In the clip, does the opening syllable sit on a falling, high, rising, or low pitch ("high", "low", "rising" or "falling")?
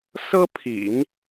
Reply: high